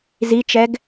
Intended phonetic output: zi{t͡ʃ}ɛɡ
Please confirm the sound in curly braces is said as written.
yes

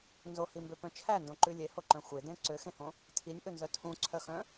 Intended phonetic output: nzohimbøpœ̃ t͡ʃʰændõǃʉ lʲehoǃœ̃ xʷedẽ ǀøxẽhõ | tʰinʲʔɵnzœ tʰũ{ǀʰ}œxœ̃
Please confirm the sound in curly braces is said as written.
yes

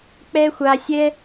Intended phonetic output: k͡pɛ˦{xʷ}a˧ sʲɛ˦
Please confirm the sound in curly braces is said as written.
yes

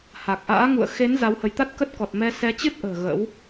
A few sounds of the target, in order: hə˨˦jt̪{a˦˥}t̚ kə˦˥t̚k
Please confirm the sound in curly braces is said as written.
yes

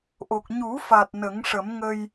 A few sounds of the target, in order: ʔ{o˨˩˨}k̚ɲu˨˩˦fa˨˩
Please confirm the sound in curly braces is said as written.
no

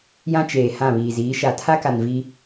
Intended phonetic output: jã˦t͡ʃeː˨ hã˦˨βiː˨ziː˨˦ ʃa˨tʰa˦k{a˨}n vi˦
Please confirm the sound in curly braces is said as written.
yes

